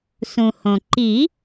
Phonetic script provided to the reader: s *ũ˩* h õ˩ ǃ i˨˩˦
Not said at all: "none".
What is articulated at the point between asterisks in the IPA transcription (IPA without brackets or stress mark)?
ũ˩